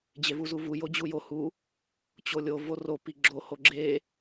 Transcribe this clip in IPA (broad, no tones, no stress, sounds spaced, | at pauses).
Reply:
d͡ʑ e v u z u v u j o d͡ʑ u j o h u | t͡ɕ o lʲ o v o r o p i ɡ͡ǁ o h o ɡ͡ǁ e